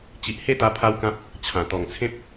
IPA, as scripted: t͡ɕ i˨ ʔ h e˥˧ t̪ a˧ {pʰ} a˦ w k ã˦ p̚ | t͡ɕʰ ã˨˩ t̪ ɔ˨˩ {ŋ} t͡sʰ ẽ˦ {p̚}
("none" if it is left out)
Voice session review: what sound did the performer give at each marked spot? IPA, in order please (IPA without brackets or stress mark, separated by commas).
pʰ, ŋ, p̚